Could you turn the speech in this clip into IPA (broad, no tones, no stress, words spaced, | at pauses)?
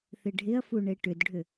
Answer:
θɪɖʱɪɐ̯fuɳe ʈʏdɖʱʏ